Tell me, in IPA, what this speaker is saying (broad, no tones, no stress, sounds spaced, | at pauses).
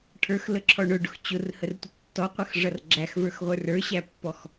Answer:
ʈʰ ə˞ x l ə ǁʰ ɔ ɳ ʊ ɖ ʊ x t͡ɕ ʊ r h ə r tʷ ə tː ɔ qʷ ə x ʐ ʌ r ɡ͡ǁ æ x v ə˞ x ʁʷ ə˞ r ə˞ ɕ æ pː ɔ x